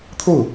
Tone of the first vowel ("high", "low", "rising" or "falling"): falling